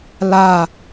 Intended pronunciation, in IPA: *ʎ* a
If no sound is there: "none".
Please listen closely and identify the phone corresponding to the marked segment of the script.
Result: l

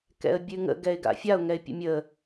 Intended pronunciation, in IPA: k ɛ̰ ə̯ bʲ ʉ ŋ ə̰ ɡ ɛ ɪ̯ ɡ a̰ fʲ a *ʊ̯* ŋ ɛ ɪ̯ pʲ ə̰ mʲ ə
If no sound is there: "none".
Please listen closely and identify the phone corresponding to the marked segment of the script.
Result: ʊ̯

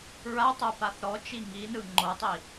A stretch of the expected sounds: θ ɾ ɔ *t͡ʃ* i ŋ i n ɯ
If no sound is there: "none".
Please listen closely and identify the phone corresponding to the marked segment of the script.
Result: t͡ʃ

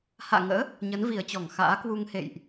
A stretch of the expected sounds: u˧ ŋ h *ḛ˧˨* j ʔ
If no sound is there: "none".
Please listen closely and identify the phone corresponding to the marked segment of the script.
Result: ḛ˧˨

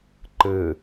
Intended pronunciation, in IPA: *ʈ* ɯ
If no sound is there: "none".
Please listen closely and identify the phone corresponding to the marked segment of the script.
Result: ǃ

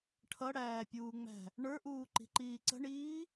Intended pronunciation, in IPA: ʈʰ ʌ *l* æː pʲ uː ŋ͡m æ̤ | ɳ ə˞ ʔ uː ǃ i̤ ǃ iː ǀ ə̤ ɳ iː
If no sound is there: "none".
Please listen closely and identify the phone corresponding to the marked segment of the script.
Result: ɽ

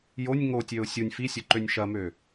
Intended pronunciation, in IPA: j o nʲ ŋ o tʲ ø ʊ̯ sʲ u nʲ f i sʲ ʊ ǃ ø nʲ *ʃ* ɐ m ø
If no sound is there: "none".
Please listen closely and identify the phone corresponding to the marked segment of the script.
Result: ʃ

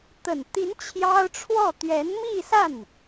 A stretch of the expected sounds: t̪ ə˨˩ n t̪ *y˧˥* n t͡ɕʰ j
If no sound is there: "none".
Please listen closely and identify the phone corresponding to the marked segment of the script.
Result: i˧˥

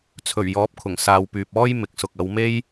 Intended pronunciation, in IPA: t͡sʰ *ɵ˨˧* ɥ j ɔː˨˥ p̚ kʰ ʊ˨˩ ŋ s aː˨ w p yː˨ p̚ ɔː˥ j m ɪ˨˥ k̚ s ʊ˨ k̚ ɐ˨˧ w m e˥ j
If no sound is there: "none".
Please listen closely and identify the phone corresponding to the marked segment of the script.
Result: ɵ˨˩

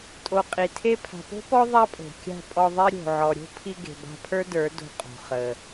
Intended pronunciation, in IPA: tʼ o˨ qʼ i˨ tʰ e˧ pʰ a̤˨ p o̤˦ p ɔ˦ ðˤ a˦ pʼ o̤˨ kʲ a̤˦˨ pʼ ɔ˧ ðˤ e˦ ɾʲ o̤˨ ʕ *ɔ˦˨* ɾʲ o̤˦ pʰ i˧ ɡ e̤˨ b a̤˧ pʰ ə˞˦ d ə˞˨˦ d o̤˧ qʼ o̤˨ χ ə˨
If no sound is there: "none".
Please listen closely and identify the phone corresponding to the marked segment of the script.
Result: ɔ˨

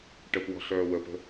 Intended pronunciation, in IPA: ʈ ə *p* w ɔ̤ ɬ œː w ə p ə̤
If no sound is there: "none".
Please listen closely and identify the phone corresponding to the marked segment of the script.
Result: p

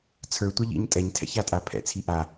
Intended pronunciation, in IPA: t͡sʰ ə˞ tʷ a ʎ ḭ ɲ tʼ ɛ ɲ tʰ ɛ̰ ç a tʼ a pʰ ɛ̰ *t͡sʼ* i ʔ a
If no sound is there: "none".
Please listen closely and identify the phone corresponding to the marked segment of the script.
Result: t͡sʰ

